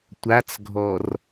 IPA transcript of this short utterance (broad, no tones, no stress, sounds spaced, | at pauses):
tʷ a t͡s ɡʱ ɔ r